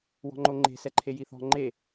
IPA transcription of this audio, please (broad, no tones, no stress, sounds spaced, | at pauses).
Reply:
w ɔ̤ ŋ͡ǃ o ŋ͡ǃ e̤ s ɛ ǃʰ e j i θ ɔ̤ ŋ͡ǃ e